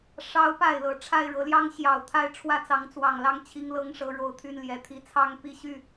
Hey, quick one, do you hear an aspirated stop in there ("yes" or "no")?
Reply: yes